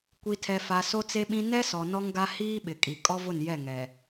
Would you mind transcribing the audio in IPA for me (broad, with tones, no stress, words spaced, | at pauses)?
kʷi˨tʰɛ˨fa˨ so˦t͡se˦ɓĩ˦ nɛ˦sɔ˨ nɔ˦ŋɡa˦ hiː˦ɓɪ˨kʼi˨ kʼɔ˦vʊ˦˨njɛ˦˨ŋɛ˨